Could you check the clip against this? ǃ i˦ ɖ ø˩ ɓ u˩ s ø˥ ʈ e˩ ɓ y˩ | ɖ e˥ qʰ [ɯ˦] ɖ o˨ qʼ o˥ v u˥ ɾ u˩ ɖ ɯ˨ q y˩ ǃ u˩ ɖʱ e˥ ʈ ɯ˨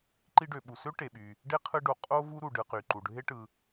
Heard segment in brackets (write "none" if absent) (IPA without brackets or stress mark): ɯ˦